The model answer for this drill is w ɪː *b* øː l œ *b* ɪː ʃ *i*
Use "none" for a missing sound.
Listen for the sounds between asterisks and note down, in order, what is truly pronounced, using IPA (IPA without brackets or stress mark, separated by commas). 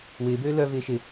b, v, ɪ